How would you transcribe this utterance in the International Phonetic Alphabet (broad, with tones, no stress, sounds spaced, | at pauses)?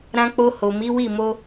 ɾ ã˧ k͡p o˧ h o˨ m i˨˦ w i˦˨ m o˧